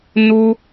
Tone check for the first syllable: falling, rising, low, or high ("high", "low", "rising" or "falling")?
high